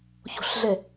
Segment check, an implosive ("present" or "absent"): absent